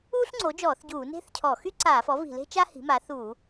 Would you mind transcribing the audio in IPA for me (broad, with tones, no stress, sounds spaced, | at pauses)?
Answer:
uː˥ ɬ ŋ͡ǀ o˩˥ d͡ʒ ɔː˧˩˧ θ ɟ uː˧˩˧ n e̤˥ θ cʰ ɔ˧˩˧ x y˥ ǀ aː˧˩˧ f ɔ˩˥ v i̤˧˩˧ l e̤˥ t͡ʃ a˥ h i̤˩˥ m a˩˥ θ uː˧˩˧